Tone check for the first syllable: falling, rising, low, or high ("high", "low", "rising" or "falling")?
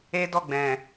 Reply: high